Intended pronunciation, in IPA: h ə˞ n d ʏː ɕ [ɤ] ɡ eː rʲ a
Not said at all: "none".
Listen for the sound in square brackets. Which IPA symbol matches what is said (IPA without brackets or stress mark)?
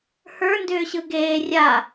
ɯ